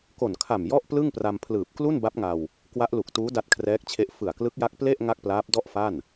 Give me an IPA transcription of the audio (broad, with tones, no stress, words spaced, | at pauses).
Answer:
ko˨˩nkʰa˨˩m jɔ˥˩ʔplɯ˥˩ŋpra˧mpʰlɯː˨˩p̚ klu˥˩nba˦˥p̚ŋa˧w | kwa˦˥ʔlu˨˩k̚tuː˦˥ da˦˥t̚kʰrɛː˦˥k̚t͡ɕʰe˦˥ʔ fɯ˨˩a̯klɯ˦˥k̚ja˦˥k̚ ple˥˩ʔ ŋa˥˩k̚plaː˦˥p̚ dɔ˥˩ʔfa˥˩n